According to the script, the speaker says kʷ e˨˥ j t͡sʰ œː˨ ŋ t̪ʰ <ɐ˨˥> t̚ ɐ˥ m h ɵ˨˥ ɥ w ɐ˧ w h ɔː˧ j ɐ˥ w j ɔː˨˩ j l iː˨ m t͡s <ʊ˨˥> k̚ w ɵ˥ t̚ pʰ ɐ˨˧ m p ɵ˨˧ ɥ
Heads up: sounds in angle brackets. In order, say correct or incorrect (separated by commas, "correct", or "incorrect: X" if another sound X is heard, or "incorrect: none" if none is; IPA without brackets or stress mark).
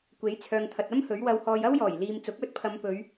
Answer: incorrect: ɐ˨, correct